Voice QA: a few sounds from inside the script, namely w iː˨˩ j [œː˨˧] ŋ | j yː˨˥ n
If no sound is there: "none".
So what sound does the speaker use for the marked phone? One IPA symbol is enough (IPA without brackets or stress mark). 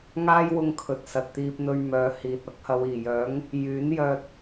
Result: œː˨˥